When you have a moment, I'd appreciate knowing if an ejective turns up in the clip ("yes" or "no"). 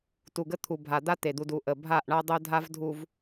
no